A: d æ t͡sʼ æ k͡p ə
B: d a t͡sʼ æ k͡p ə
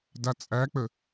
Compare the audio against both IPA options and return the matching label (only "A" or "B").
B